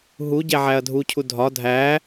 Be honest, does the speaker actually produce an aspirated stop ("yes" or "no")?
yes